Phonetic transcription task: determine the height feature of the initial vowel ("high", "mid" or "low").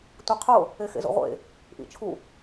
high